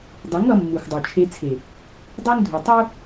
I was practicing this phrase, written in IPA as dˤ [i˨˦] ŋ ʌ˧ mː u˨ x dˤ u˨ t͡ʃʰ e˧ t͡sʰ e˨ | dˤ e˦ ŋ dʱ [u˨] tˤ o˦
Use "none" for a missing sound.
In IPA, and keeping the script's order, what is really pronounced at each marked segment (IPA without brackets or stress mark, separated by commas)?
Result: i˨˦, u˨